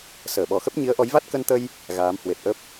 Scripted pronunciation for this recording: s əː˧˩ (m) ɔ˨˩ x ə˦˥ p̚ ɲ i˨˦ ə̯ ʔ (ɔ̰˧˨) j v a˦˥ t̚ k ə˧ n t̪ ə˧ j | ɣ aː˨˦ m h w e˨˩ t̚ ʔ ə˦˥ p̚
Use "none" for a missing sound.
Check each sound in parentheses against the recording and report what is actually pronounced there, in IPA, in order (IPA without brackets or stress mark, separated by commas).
ɓ, ɔ˨˦